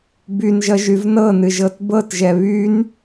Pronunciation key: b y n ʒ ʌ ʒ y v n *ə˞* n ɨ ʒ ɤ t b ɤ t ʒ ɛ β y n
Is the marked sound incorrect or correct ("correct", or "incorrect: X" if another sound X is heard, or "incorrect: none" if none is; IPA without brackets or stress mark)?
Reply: incorrect: ɤ